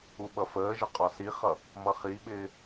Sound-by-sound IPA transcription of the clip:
u ɓ ʌ f əː ʒ ə qʼ ɒ s i χ ʌ | m ʌ χ i ɓ ɪː

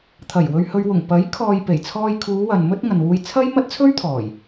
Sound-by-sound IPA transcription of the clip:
t̪ʰ ɐ˨˩ j w ɵ˧ ɥ h ɵ˧ ɥ w ʊ˨˩ ŋ p ɐ˨˥ j kʰ ɔː˨ j p e˨˩ j t͡sʰ ɔː˧ j kʰ uː˨˧ w ɐ˨ n m ɵ˥ t̚ ŋ ɐ˨ n w uː˧ j t͡sʰ ɐ˥ j m ɐ˥ t̚ t͡sʰ ɵ˥ ɥ t̪ʰ ɔː˨˩ j

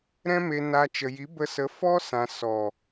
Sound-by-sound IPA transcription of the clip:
ɾ ɛ̃˦ m e˧ n a˧ t͡ʃ ə˨ j i˨˦ b ə˧ s ə˨˦ f ɔ˦ s ã˨ s ɔ˨

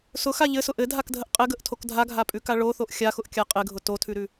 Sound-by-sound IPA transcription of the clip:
s ʊ x a ʎ ɘ s ʊ ʔ ɘ dʱ a k dʱ ə ʔ qʼ ɘ ɡ ə ʔ tʰ o k dʱ a ɡʱ a pʼ ʉ k a ɭ o θ o ʔ xʲ a x ʊ ʔ kʲ a qʼ ɘ ɡʱ ʊ t o tʰ ʉ ɾ ʉ

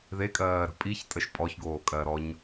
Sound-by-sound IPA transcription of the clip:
ð e kʼ ɜː ɾ ə̤ pʼ i ç tʼ ə ʃ pʼ ɔ ç ɡ oː kʼ ɜ ɾ ɔ ɲ

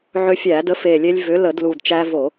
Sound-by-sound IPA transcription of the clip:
ʕ ʏ˧ fʲ æ˧˩˧ d ə˨˥ f e˨˩ lʲ e˧ lʲ v ʏ˨˥ l ə˧˩˧ d l u˨˩ d t͡ʃ æ˧ v o˧˩˧

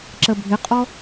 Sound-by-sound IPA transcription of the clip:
ǁ ə bʱ ɪ qʼ ɔ

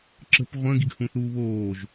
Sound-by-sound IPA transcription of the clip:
ǁ ə̤ p ʁʷ ə̃ː ɡ i ɡ h ũ θ uː β oː ʒ

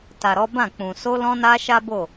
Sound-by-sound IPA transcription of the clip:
t a˨ ɾ ɔ˨˦ b ã˦˨ k͡p ũ˨ s o˧ l ɔ̃˧ n a˧ ʃ a˦ b o˦˨

